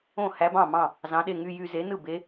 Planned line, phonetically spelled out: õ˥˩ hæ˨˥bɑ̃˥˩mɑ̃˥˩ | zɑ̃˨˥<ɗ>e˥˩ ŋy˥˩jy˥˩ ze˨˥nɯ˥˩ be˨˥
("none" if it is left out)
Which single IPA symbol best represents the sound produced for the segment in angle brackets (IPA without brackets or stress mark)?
ɗ